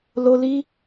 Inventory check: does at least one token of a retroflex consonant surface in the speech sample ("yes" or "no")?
no